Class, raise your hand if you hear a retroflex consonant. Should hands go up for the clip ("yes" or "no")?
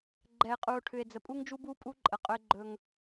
yes